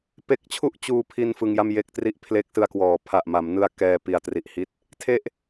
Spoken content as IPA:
p e˦˥ k̚ t͡ɕʰ u˥˩ ʔ t͡ɕ uː˧ pʰ i˧ n f ɯ˧ ŋ j a˥˩ m j e˥˩ k̚ t r i˥˩ ʔ pʰ l e˦˥ k̚ s ɯ˧ a̯ k w ɔː˩˦ pʰ a˨˩ ʔ m a˩˦ m n ɯ˧ a̯ k ɛː˧ p i˨˩ a̯ t r i˨˩ ʔ h i˦˥ t̚ | tʰ e˥˩ ʔ

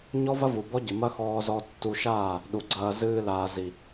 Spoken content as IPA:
ɲ ɔ˦ v ɐ˦ v u˨ b ɔ˦ ɟ ɨ˨ m ɐ˦ x ɔː˧ z ɔ˧ tː u˧ ʃ aː˦˨ | ɗ u˨ ɡ͡ǀ ɐː˧ z ɨː˧ l aː˨ z i˨

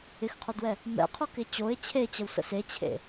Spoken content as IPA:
ɪ x qʰ o d w ɛ | m ɛ̰ qʰ o k ɪ t͡ɕ o ɪ̯ t͡ɕʰ e t͡ɕ ə w s ə̰ s e t͡ɕʰ ḛ

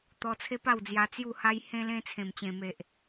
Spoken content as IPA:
t̪ ɔ˧ t͡sʰ e˦ p a˥˧ w d͡z j a˧ t͡s j u˥˧ h a˦ j h ẽ˦ l ẽ˦ t͡sʰ ẽ˨˩ m t͡ɕ ẽ˨˩ m e˨ ʔ

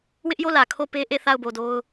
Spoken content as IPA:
w ɪ˦ ʔ j o˦˨ l ä˨ kʰ o˦˨ p e˦ ʔ e˦˨ θ a˦˨ ʊ̯ b o˨ d o˦ ʊ̯

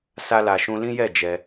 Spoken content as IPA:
s a˧ l a˨ ʃ ũ˧ l ĩ˦ j ɛ˦˨ d͡ʒ ɛ˧

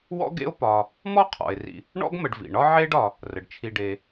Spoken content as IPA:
w ɔ̰˦ ɡ ḛ˦ o̯ p ɒ˨ | m ɔ˥ qʰ ɔ̰˩ e̯ r ḭ˨ | ɳ ɔ̰˥ ɡ m ə˨ ɖ v ḭ˩ ɳ ɒ˥ ʕ e˦ ɖ ɒ˨ | r ə˩ ɖ t͡ʃʰ i˨ ɖ e˨

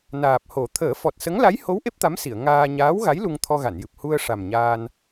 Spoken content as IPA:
n aː˨˩ p̚ h o˨˩˦ t̪ʰ əː˨˩˦ f ɔ˨˩ t̚ s ə˧˥ ŋ l a˧˥ j h o˧˥ w ʔ e˦˥ p̚ t̪ a˧˥ m s i˨˩˨ ə̯ ŋ aː˧ ɲ aː˧˥ w ɣ a˧˥ j l u˧ ŋ t̪ʰ ɔ˧ ɣ a˨˩˨ n j ɨ˨˩ p̚ h u˧ ə̯ ʂ a˨˩ m ɲ aː˧ n

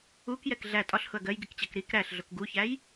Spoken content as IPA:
u k j ɛ k ɮ æ tʼ ɒ ɬ h ʊ ɐ̯ ɡ ɜ j ɡ i k t͡ɕ ɜ k ɾ i k ɾ æ ɬ ɮ ʊ k ɡ u ç æ j

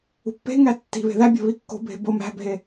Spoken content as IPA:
ṳ pː e̤ ŋ æ tː i̤ β e̤ ð æ bʲ o̤ β i kː o̤ bʱ e̤ b o m æ̤ bʱ e

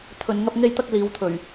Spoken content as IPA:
t̪ʰ ɵ˨ n ŋ ɐ˧ p̚ ŋ e˧ j t̪ ɐ˧ k̚ l iː˨˧ w t̪ʰ ɵ˨˩ ɥ

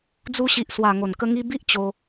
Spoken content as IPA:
d͡z u˧ ɕ i˨ ʔ s w a˨˩ ŋ o˨˩ n k ə˧ ŋ i˧ b i˦ ʔ t͡ɕ o˧

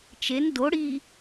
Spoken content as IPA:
t͡ʃ e n d o ɽ i

